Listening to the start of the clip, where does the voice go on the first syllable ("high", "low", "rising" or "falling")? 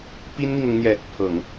high